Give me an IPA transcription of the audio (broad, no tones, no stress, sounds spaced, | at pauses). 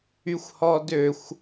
y xʷ h ɔ d ø xʷ